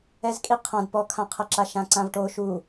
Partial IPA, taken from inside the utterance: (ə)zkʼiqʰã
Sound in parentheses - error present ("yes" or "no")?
yes